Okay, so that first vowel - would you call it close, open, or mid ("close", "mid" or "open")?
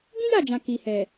close